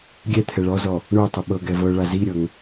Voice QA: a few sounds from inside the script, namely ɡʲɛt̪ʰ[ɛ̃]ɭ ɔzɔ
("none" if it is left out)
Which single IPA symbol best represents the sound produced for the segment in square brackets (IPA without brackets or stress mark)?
ɛ